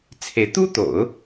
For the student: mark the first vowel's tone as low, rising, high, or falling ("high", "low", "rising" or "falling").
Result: rising